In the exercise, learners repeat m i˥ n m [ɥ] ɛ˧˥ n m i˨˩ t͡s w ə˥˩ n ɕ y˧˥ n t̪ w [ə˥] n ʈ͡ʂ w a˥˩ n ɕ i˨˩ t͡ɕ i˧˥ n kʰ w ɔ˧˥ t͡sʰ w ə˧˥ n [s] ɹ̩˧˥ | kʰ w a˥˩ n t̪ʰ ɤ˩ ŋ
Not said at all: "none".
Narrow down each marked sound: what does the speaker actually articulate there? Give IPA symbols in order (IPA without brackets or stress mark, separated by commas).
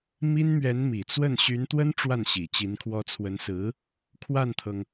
ɥ, ə˥, s